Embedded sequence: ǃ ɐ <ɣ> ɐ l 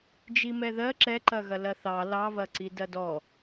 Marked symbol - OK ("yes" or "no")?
yes